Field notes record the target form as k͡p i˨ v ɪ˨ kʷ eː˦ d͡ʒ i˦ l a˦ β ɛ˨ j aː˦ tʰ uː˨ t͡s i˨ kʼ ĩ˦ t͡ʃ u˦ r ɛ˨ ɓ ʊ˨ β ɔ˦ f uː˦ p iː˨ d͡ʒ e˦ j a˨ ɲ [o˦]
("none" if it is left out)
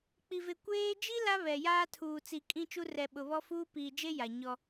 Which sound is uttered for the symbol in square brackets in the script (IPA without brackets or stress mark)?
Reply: ɔ˦